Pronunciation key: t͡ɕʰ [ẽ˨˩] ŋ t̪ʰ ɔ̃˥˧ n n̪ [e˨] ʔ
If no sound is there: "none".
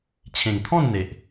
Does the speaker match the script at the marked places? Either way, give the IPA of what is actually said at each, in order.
ẽ˨˩, e˨

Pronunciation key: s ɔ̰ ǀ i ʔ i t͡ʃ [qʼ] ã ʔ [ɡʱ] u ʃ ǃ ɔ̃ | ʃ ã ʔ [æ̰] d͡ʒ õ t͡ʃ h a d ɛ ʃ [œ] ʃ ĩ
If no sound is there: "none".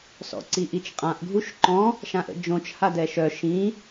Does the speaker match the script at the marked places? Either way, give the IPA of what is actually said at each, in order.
qʼ, ɡʱ, ə̰, œ

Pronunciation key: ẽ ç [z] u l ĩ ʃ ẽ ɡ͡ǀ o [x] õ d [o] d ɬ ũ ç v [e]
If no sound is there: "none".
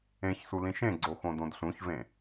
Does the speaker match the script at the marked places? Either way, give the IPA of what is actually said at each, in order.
s, x, õ, ẽ

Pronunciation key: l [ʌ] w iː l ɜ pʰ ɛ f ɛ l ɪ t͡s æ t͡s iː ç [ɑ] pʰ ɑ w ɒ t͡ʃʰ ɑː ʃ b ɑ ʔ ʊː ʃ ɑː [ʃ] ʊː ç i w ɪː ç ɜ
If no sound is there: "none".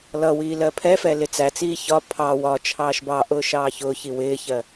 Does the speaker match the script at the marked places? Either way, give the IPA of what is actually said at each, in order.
ʌ, ɒ, ç

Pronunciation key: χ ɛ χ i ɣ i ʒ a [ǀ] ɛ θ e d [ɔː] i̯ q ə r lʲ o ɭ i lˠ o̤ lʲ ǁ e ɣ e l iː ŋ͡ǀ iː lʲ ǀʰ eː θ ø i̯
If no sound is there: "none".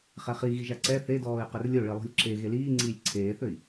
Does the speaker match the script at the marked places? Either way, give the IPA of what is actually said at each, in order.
ǀ, ɔː

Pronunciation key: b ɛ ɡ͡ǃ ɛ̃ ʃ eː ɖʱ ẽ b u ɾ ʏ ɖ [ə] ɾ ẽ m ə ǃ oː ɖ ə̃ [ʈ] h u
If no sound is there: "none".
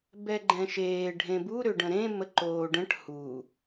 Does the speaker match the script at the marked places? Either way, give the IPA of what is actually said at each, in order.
ə̃, ʈ

